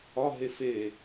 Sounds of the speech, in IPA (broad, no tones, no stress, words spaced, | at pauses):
ɒɦe fe